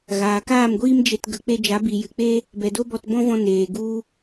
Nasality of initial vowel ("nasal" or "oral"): oral